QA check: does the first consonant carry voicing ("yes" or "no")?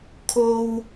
no